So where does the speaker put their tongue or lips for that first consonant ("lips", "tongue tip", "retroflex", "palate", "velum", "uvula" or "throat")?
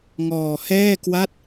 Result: velum